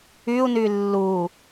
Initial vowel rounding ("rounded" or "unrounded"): rounded